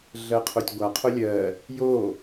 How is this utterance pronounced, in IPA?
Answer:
ɮ ɜ qʰ o tʲ ɡʷ a qʰ o lʲ ɜ | j o

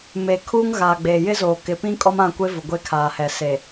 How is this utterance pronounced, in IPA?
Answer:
m e˨ kʰ uː˦ ŋ ɣ aː˨ ɡ͡b e˨ j ɪ˦ z oː˨ k ɪ˨ p ĩ˦ kʼ ɔ˦ m ã˦˨ kʷ e˦ v ʊ˨ ɡʷ e˦ kʰ aː˨ h ɛ˨ s e˨

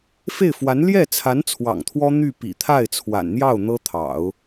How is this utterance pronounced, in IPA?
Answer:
f e˥˩ ɪ̯ f w a˧˥ n l j ɛ˥˩ t͡sʰ a˧˥ n t͡sʰ w ɑ̰˨˩ ŋ t̪ʰ w ɔ˥ n̪ y˥˩ p ḭ˨˩ t̪ʰ a˥˩ ɪ̯ t͡sʰ w a̰˨˩ n n̪ j ɑ˥˩ ʊ̯ n̪ ɤ˥ t̪ʰ ɑ̰˨˩˦ ʊ̯

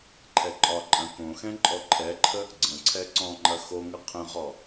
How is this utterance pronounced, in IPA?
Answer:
ǃʰ ɛ ǃʼ ɒ ǃʼ ɐ̃ k õ x ɛ̃ ǃʼ ɔ ǃʰ ɛ ǃʰ ə | ɡ͡ǀ ə̃ ǀʰ ɛ ǀ ɔ̃ ŋ͡ǃ ɐ x o ŋ ə qʰ ə̃ ʁ ɔ

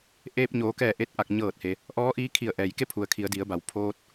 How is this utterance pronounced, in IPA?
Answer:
ʔ eː˧ p̚ ɲ oː˩˧ k ɛː˧˩ ʔ e˧ t̚ ʔ a˧˩ k̚ ɲ ɤː˧˩ t̚ h e˩ | ʔ ɔː˧˥ ʔ iː˧˥ kʰ i˧˩ ə̯ ʔ ɛː˩ j k e˥˨ pʰ u˩ ə̯ kʰ i˩˧ ə̯ d i˩˧ ə̯ b a˩˧ w pʰ oː˧ t̚

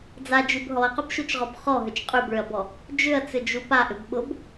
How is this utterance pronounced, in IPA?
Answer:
d͡z a d͡ʒ y b ɦ ɔ ɐ̯ q ʏ b ʃ u t͡ʃ ʁ ɔ b χ ɔ ɦ ʏ t͡ʃ qʼ y b ɭ ʏ ɐ̯ b ɔ | d͡ʒ ʏ ɐ̯ t͡s ʏ d͡ʒ u p a ʔ ʏ b ɓ ʊ b

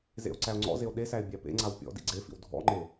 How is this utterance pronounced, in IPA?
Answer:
z ḛ o̯ ǀ æ o̯ ŋ͡ǀ ɔ̰ z e o̯ ɗ e s æ e̯ bʲ æ p ḛ ŋ͡ǀ a w pʲ ɔ̰ d ḭ ɡ͡ǀ e f ḭ w dʱ ɔ̰ ŋ͡ǃ e

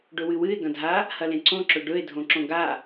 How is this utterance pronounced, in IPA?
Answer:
ɖ ɵ w ɨ w ɨ ɪ̯ ɡ ɐ̃ dʱ a | h ɐ l ẽ ǀ õ ǁ ɵ ɖ ɵ ɪ̯ dʱ õ ǁ õ ɡ a

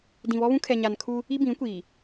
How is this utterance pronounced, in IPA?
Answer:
d ĩ˨ β ɔ˦ β ũ˦ kʰ ɛ˨ ɲ a˨ n kʰ u˦ | i˦ b ĩ˨˦ kʷ iː˨

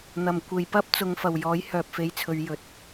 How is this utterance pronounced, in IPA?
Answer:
n̪ ɐ˨˩ m kʷ e˨ j p ɐ˥ p̚ t͡s ʊ˨˧ ŋ f ɐ˨˩ w j ɔː˨˥ j h œː˨ p̚ f e˨˧ j t͡sʰ ɵ˨˧ ɥ j ɵ˨˥ t̚

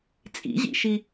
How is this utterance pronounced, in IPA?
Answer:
t͡sʼ ḭ ʑ ḭ ʃ i

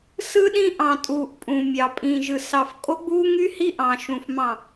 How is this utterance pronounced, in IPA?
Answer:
s ɯ˦ ɗ ĩ˦ ʔ ɑ̃˨ tʼ uː˨ ʔ pʼ ũ˨ mʲ ɑ˨ pʼ ĩː˨ ʒ ɯ˨ s ɑ˨ f kʼ o˦ ɡ͡b uː˦ ŋ y˦ h i˦ ʔ ɑ̃˨ ʃ ũ˨ f m ɑ̃˨

